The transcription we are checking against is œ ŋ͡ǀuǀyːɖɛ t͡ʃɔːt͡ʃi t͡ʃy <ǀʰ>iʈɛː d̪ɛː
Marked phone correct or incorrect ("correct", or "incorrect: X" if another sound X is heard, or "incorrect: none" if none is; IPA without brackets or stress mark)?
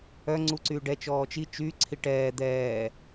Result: correct